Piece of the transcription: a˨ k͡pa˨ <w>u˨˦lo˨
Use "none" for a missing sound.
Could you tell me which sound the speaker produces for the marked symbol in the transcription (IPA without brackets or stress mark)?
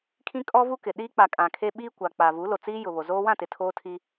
v